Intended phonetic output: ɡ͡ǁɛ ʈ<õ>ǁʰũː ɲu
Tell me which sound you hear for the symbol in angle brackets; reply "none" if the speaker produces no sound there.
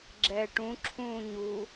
ũ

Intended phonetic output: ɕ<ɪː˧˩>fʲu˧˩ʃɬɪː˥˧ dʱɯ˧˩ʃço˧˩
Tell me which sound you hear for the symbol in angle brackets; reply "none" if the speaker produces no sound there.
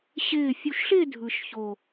ɪː˧˩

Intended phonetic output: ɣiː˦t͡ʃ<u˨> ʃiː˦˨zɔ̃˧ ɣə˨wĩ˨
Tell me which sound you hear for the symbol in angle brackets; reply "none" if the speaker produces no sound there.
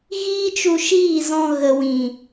u˧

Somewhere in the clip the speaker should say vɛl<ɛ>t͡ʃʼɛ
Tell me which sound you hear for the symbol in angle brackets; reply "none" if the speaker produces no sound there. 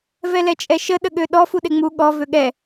ɛ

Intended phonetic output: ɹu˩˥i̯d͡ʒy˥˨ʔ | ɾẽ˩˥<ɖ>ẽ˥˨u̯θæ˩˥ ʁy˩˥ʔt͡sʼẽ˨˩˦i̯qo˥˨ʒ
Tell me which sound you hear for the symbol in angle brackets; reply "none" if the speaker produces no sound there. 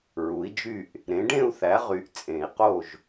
ɖ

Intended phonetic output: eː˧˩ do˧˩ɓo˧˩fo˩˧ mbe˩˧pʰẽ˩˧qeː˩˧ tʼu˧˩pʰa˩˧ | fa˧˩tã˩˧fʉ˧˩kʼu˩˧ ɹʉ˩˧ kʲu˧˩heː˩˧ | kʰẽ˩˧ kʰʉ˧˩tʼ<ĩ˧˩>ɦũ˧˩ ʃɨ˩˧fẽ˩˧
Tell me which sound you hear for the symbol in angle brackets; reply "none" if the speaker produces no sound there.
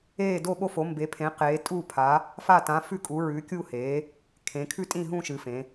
ĩ˧˩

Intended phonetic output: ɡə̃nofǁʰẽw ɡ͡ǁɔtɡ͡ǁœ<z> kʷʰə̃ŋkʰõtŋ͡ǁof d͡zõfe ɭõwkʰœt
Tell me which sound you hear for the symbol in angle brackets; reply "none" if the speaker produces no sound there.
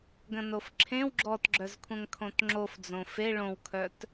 z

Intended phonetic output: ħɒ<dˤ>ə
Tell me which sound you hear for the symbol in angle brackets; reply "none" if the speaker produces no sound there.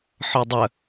dˤ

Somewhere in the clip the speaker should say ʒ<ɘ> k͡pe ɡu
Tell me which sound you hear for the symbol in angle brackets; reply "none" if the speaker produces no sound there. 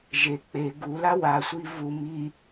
e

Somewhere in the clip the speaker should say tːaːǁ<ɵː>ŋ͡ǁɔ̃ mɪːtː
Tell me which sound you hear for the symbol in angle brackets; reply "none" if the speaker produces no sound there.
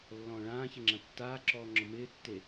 ɔː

